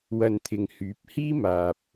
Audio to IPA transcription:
w ɐ˧ n t̪ʰ ɪ˨ ŋ h yː˨˥ p̚ h iː˥ m aː˨ p̚

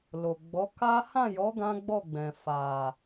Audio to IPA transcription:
l o˨ ɡ͡b ɔ˨˦ k a˦ h ã˦˨ j ɔ˨˦ ɡ ã˦ ɡ͡b ɔ˦˨ ɡ͡b ɛ̃˨ f a˨

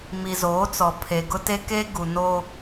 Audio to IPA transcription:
m i˨ z oː˨˦ t͡s ɔ˨ pʰ e˨ ɡ ʊ˦ t e˦ k e˦ ɡ u˨ n o˦

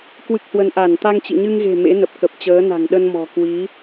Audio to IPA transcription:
k w ɨ˦˥ k̚ h w ə˧ n ʔ a˧˩ n t̪ a˧ ŋ t͡ɕ ḭ˧˨ ɲ ɨ˧ ŋ ɣ e̤˨˩ m ḛ˧˥ n ə˨˩ p̚ k ə˨˩ p̚ t͡ɕ əː˨˦ n a̤˨˩ ŋ ɗ ə˧ n m ɔ̤˨˩ k w i˨˦

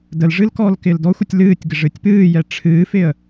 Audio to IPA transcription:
d ə l ʐ ɨ l k ɔː l k ɪː l d ɔ xʷ ɨ tʲ l ɨː tʲ ɡ ɪ ʐ ɨ tʲ p ɨː j ɛ ʈ͡ʂʰ ɨː f ɪ ə̯

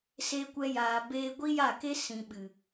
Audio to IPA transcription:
s e˧ kʷ ɛ˧ j aː˨ b eː˧ ɡʷ i˦ j a˦˨ k e˦ s ĩ˨ ɓ ɨ˨

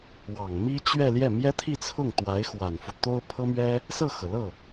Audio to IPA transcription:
w ɑ˨˩ ŋ m i˥ t͡ɕ ɥ ɛ˥˧ l j ɛ˥˩ m j ɛ˥ t̪ʰ i˥˧ t͡sʰ ʊ˥˩ ŋ t̪ w a˧˥ ɪ̯ x w a˨˩ n f u˦ t̪ o˥ ʊ̯ pʰ ɤ˥ m ɥ ɛ˥ | s ɤ˥˩ x ɤ˩ l ɤ˥˩

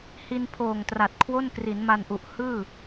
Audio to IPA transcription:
h i˧ n pʰ oː˨˩ ŋ t r a˨˩ t̚ kʰ w o˥˩ n k r i˩˦ n m a˧ n ʔ u˨˩ ʔ h ɯː˥˩

